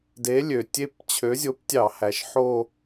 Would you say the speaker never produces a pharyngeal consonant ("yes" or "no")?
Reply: no